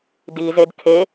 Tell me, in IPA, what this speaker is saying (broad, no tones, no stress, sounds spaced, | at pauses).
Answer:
d i z e d kʰ e